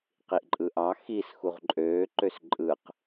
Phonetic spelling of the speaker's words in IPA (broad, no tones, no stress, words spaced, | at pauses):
qiʔǃʼɯʔɑ xis xuʁǃʼøː ǃøsǃʼɯq